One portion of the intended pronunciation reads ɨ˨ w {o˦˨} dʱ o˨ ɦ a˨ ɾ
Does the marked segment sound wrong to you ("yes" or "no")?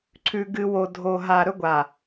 yes